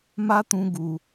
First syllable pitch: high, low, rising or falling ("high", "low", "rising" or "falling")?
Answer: high